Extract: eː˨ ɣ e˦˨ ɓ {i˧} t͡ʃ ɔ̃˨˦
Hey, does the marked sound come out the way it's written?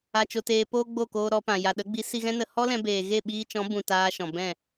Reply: no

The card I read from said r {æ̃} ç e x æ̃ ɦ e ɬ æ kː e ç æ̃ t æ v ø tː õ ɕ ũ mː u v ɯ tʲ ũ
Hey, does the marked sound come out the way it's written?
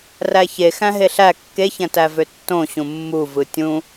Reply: no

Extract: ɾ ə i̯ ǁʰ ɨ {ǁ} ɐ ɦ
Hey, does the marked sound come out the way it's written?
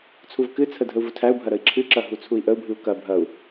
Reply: yes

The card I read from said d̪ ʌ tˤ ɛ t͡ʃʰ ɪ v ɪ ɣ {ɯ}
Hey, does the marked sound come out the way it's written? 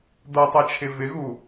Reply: no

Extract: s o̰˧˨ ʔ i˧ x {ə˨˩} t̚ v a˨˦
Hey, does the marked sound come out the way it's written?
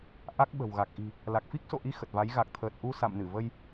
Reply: yes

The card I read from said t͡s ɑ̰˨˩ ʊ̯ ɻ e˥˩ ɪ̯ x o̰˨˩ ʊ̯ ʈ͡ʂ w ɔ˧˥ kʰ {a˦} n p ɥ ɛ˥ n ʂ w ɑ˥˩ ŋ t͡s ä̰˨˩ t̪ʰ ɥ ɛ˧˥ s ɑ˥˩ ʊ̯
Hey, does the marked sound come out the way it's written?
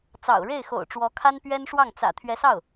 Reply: no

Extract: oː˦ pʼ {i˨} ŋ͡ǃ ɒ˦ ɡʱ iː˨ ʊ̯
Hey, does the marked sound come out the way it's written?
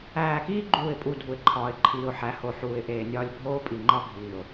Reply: yes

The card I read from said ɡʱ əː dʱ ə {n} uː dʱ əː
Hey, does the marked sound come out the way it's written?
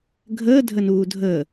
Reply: yes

